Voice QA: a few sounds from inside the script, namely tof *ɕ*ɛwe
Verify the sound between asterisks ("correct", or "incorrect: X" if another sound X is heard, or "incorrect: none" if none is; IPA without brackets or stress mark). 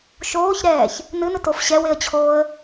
correct